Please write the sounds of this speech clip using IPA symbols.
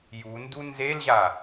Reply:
j u n d u n z e l ʑ a

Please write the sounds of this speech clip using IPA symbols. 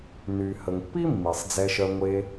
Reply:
n y˩ h ə˩ ŋ pː i˥ mː i˩ sˤ d͡z ɛ˨ ʃ œ˨ ŋʷ e˨

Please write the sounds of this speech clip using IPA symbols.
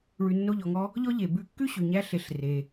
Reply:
ɭ ʉ˧ nː o˦ ʎ ɔ˧ ŋ ɔ˦ | ʎ ɔ˦ ʎ e˨ b ʉ˧ kː ʉ˦ ɕ ʉ˨ ɲ æ˧ ɬ e˦ ɬ r e˧

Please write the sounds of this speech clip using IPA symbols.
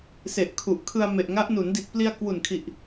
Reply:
s e˨˩ ʔ kʰ u˨˩ ʔ kʰ ɯ˧ a̯ m e˨˩ ʔ ŋ a˦˥ ʔ n u˩˦ n d i˨˩ t̚ p l i˧ a̯ k w u˨˩ n kʰ i˨˩ ʔ

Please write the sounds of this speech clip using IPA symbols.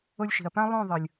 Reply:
o˧ lʲ ʃ i̤˨ ɐ̯ p ã˦ lˠ õ˦˨ ðˤ ɯ˨ lʲ

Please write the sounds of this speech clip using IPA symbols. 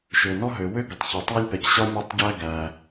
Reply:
ʃ ø˩ n ɔ˥ ɦ ø˩ w ø˥ ɡ ə˩ tˤ ç ə˩ tˤ a˥ lʲ p ɛ˩ c ɕ ɒ˥ mʲ ø˥ tˤ ɟ æ˥ ɡ æ˩

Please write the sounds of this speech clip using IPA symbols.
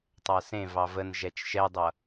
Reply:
tˤ a s ẽ v ɑ v ə n ʒ ɛ t͡ʃ ʃ ɛ dˤ ʌ

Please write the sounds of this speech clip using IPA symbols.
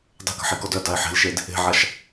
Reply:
dˤ e̤ k ə̤ ħ i k ɔ d œ d a ɪ̯ ħ e̤ l ʃ e d | e̤ ʕ a ʃ

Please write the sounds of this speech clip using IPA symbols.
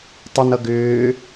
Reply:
tˤ ɨ n ʌ ɡ ʏː

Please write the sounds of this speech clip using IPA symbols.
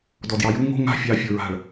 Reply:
d ɔ d j ɑ j u ŋ o̤ ŋ a̤ fʲ ɑ fʲ o ɹ a̤ ɭ

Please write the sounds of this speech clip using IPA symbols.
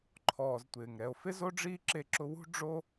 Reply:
ǃʰ ɔː˨ z tʷ ɪː˩ ŋ ɾ ɛ˨ o̯ f ɪ˥ z o˥ ɖ͡ʐ iː˥ ǁ e˦ ǁ ʊ˦ w ṳ˥ ɖ͡ʐ o˥

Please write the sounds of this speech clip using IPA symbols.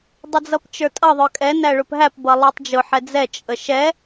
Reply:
dˤ ə d͡z ʌ p t͡ʃ ə˞ tʼ ʌ ðˤ ə˞ kʼ ɛ n æ ɭ ʊ p ɦ æ p b ʌ lˠ ə˞ tˤ d͡ʒ ʊ ħ ɛ d͡z ɛ t͡ʃʼ ə ʃ ɛ

